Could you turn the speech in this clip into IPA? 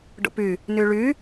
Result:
ɖo̰py | nyɭy

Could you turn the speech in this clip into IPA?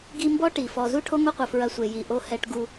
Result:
ɡi˦mbɔ˥ʈi˩ fɔ˨zu˥ʈʰo˥ ŋo˥qʷɐ˨ fɹɐ˨sʷe˩ ji˩ʔo˨ hɛ˨ʈ ɡu˨

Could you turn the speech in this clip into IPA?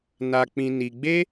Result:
na˧k͡pĩ˧ni˧ ɡ͡be˦

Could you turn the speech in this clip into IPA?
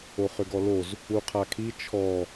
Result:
oχʏɡɔloz | uqʰakʰi t͡ʃʰɔ

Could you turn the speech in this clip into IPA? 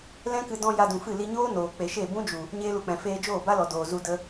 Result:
lɛ̃˦kɨ˧ dɔ̃˧ ja˧dũ˨fɨ˦˨ li˧ɲoː˦ noː˨ k͡pe˨ʃe˦˨ bũ˦d͡ʒu˨ | ɲeː˦lu˧k͡pɛ̃˨ feː˧d͡ʒoː˦˨ba˦lɔ˨ doː˨zu˧ də˦

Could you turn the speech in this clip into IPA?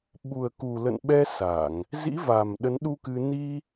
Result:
ɓu˨˩ə̯ku˨˩lə̰˧˨nɓɛ˧ sa˧˩˨ŋ | zḭ˧˥va˨˩m ɗə˨˦nɗu˧kɨ˧ ni˧

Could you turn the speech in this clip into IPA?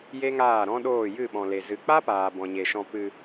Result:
je˦ŋaː˦˨ɾɔ̃˦ɗoː˦˨ jɨ˦˨ɓɔ̃˨le˨ zɨ˨k͡pa˦paː˨ bɔ̃˨ɲe˨ʃɔ̃˧ pɨ˧

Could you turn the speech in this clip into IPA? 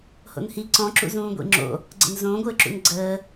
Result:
ho̰nhi ǀɔ̃ǁṵzũː ɡʷḭŋ͡ǁo̰ | ɡ͡ǀə̰nzõːɡʷɘːǁṵn ɡ͡ǀəː

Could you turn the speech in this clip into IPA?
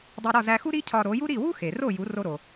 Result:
dˤo˧ɾɒ˥˩zæ˧ xu˥ɾi˥cʰɒ˧ ɾo˩˥ju˥ ɾi˥˩ wu˥ xe˩ro˥˩ju˩˥ ro˧ɾo˩

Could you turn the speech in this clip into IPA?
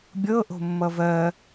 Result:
bʲɤ ʔo̤mːʌvɜ

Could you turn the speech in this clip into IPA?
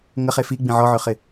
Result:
ŋəχe fi ɡ͡bĩʕɔʕøχɪ

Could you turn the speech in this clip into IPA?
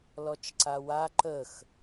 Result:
lɔt͡ʃǀawa ǃəx

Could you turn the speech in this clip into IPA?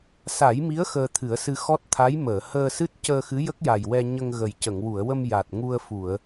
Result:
sa˨˩˦jmi˧˥ə̯ xəː˧t̪ʰɨ˨˩˦ə̯sɨ˧ xɔ˦˥t̚t̪ʰa˧˥j məː˨˩˨həː˧sɨ˦˥t̚ cəː˧xɨ˧˥jə˦˥k̚ja˨˩j wɛ˧ ɲə˧ŋɣə˨˩jcə˨˩˨ŋ wu˨˩˨ə̯wə˧m ja˨˩t̚ŋu˧ə̯fu˨˩˨ə̯

